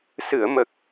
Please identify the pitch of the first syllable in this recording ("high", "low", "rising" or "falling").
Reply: low